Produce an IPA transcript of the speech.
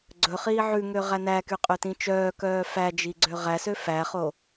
ɡ͡ǀ ɵ χ iː ʕ ʉ ŋ ø ʁ æ n æ k y qʼ ø t ĩ t͡ʃ œː k œː f æ d͡ʒ i ɡ͡ǀ ø ʁ æ s ø f æ χ o

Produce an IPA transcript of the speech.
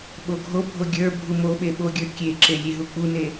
ɓ o ɡʱ o bʱ o ɡʲ ə˞ bʱ u m o ɓ e ɓ o ɡʲ ə˞ kʲ e ǁ e lʲ e ɦ u k͡p u n e

